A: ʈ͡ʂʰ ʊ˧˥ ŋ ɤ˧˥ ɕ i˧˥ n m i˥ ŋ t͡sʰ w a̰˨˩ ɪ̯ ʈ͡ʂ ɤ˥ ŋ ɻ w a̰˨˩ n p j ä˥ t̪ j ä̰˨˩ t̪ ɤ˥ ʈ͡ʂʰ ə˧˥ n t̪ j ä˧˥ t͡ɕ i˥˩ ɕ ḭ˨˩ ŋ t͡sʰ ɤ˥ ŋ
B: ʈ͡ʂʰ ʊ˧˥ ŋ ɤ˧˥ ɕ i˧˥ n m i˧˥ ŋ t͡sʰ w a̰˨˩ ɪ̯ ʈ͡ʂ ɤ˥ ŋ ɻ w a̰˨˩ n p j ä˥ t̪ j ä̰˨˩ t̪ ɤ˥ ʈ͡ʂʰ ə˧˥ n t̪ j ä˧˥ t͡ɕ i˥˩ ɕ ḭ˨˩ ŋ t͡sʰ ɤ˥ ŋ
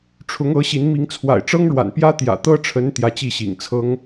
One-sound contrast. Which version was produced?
B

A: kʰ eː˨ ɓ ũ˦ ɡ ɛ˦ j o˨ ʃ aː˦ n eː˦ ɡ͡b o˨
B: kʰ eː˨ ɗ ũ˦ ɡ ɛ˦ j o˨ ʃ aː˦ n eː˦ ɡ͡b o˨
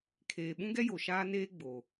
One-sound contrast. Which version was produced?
A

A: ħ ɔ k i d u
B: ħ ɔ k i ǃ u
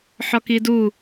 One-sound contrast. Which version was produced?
A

